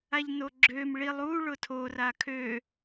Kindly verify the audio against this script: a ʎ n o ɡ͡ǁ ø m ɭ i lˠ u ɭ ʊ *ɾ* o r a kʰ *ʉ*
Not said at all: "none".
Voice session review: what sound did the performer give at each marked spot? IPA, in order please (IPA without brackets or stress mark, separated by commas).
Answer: tʰ, ø